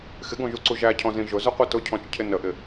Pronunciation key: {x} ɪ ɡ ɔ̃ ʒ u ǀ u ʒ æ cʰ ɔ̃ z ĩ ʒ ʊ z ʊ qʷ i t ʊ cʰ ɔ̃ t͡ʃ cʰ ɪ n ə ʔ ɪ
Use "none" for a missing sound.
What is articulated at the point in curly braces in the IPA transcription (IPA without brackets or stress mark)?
x